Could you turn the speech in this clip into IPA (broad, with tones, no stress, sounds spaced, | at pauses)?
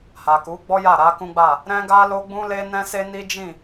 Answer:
h a˨ k u˨˦ ɡ͡b ɔ˦ j a˦˨ ɾ a˨˦ k ũ˦ ɡ͡b a˦˨ | ɾ ɛ̃˦ ɡ a˦ l o˦ ɡ͡b ũ˦ l e˦ n ɛ̃˦ s e˦ n i˦ d͡ʒ ĩ˦˨